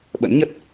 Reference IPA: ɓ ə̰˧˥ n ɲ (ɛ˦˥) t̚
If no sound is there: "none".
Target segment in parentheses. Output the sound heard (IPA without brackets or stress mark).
ə˦˥